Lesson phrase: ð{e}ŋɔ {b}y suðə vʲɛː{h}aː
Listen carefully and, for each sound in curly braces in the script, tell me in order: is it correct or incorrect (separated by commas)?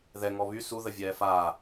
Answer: incorrect, incorrect, incorrect